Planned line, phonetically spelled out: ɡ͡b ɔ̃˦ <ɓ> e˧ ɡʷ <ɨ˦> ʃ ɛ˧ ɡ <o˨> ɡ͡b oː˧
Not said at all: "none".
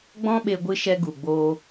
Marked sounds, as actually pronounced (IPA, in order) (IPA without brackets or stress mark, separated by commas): ɓ, ɨ˧, u˨